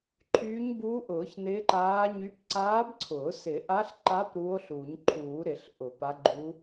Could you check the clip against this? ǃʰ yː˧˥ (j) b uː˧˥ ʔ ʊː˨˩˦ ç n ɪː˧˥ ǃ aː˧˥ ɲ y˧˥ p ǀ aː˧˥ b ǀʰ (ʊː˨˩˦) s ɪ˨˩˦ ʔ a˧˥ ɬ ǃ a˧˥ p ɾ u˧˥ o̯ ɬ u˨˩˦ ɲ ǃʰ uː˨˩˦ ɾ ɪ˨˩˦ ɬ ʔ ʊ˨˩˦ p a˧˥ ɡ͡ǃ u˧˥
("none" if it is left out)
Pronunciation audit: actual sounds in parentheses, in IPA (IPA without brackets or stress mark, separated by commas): ɲ, ʊː˨˩˦